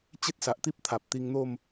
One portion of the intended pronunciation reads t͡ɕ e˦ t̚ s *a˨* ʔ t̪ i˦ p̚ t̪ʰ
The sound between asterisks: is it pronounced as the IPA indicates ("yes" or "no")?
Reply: yes